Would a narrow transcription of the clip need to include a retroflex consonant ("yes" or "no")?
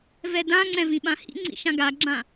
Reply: no